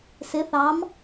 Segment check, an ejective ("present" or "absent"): absent